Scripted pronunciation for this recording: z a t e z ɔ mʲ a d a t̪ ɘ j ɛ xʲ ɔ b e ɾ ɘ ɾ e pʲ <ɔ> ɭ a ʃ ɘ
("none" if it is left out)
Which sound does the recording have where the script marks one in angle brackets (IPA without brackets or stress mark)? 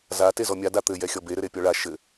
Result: ɔ